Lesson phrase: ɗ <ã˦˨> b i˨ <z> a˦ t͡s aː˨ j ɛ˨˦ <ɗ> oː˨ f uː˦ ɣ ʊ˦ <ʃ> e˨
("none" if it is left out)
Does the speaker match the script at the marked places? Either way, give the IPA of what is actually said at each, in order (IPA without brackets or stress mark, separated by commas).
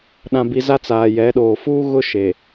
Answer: ã˨, z, ɗ, ʃ